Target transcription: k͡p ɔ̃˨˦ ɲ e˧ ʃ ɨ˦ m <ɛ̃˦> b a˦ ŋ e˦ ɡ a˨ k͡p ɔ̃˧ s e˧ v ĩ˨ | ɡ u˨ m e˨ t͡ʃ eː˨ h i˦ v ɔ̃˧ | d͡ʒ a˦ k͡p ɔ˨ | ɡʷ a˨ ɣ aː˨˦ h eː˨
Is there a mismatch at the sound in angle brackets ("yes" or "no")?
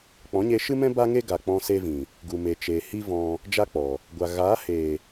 no